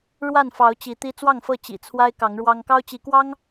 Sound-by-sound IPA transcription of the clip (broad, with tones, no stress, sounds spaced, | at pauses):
ɻ w a˥˨ n f ɑ˨˦ ʊ̯ t͡ɕ i˨˦ t̪ i˦ t͡s w ɑ˥˨ ŋ f ɤ˥˨ t͡ɕ ḭ˨˩ t͡sʰ w a˦ ɪ̯ k ɑ˨˦ ŋ ɻ w ɑ˦ ŋ k ɑ˦ ʊ̯ t͡ɕ i˨˦ k w ɑ˦ ŋ